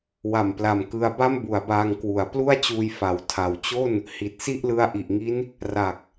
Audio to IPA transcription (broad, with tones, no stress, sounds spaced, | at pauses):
w a˨˩ m p l a˨˩ m k ɯ˧ a̯ b a˥˩ m b u˩˦ a̯ b aː˧ ŋ k w u˩˦ a̯ p l u˥˩ a̯ t͡ɕ uː˧ j f a˩˦ w tʰ a˨˩ w t͡ɕ o˥˩ n | h i˨˩ t̚ s i˥˩ ʔ l ɯ˦˥ a̯ ʔ i˨˩ ʔ ŋ i˦˥ n | r a˨˩ k̚